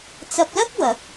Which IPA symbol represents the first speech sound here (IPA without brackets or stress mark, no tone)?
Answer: t͡s